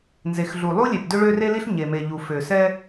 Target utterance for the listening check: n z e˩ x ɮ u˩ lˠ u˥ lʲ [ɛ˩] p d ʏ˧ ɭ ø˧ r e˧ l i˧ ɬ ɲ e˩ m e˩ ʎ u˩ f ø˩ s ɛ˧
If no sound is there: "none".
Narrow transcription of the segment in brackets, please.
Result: e˩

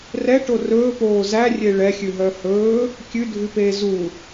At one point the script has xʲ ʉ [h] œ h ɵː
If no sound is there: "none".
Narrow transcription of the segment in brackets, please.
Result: ɦ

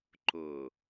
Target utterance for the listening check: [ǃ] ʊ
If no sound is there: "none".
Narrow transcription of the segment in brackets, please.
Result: ǃ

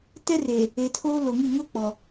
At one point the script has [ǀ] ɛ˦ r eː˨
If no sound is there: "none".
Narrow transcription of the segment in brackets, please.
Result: t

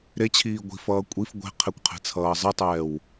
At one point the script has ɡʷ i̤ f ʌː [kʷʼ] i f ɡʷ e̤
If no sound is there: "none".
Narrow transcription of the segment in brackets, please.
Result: kʷʼ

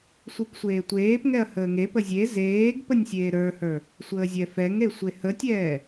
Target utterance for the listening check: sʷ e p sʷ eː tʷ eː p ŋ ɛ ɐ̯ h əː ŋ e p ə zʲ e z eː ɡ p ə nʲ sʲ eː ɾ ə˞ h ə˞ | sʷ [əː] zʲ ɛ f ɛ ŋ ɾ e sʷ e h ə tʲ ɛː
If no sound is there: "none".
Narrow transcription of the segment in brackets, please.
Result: əː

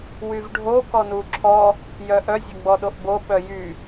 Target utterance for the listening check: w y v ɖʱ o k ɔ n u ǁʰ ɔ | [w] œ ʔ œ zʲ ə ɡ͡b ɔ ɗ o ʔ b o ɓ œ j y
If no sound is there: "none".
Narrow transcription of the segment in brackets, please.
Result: j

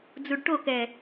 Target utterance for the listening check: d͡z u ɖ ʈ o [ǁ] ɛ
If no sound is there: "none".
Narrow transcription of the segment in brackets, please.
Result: k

